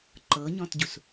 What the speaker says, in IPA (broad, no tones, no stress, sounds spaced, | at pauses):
ǃ ɤ ɲ ɔ̃ t ɟ u s